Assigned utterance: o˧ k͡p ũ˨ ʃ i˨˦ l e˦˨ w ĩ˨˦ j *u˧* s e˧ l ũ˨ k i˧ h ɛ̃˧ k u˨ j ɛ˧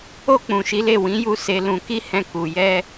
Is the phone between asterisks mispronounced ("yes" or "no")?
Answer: no